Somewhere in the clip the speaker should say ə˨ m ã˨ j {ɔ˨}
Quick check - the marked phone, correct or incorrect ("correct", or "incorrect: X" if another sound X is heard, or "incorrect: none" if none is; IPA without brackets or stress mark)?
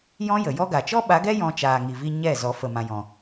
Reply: incorrect: ɔ̃˨